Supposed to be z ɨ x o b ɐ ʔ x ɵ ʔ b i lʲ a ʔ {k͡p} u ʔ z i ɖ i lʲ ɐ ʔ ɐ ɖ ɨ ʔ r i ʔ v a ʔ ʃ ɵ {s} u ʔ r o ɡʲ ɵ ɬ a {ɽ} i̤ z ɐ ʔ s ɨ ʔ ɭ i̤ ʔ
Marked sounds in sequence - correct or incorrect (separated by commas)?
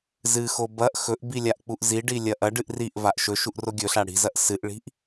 correct, incorrect, correct